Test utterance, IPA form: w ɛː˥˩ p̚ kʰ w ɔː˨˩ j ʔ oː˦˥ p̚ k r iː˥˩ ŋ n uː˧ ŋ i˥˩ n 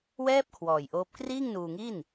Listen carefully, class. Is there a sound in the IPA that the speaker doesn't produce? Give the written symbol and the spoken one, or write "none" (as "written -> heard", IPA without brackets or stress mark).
none